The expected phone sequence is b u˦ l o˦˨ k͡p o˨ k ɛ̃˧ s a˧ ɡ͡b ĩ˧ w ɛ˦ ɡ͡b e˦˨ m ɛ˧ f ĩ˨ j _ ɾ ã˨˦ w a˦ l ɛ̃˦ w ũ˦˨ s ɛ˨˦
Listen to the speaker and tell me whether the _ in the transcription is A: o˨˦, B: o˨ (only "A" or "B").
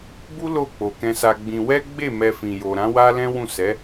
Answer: B